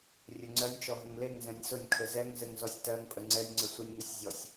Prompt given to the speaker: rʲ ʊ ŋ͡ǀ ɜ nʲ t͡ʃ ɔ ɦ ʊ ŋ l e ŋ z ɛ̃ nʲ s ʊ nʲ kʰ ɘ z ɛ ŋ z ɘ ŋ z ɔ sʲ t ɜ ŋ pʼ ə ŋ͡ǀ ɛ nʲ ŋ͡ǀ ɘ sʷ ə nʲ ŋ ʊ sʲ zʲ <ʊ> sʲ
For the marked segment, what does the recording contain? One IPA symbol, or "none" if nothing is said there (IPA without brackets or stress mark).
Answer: ɔ